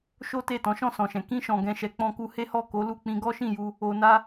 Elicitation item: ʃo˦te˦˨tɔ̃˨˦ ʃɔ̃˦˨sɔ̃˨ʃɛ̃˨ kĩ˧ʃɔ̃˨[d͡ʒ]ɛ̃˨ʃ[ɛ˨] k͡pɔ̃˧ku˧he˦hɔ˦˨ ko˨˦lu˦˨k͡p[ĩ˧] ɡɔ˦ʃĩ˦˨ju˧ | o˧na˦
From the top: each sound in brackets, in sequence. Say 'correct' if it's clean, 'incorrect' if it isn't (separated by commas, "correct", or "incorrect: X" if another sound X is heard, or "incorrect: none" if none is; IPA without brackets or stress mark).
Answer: incorrect: ɡ, correct, correct